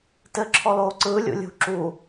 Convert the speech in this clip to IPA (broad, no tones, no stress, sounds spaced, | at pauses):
t ɘ ǁʰ ɔ l oː ǀ ɯː lʲ ṵ lʲ ṳ ǁ u